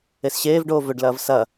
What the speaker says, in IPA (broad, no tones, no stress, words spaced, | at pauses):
esɕeːvɖoː vɵɖlɐːv sɐ